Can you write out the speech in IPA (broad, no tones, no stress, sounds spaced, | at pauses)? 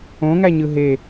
õ ŋ æ ɲ ɯ ɦ e